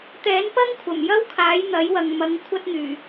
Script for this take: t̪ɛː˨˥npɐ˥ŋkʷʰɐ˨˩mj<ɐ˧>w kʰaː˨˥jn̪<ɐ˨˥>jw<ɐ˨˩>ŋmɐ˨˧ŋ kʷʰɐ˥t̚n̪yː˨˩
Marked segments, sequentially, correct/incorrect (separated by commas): incorrect, correct, incorrect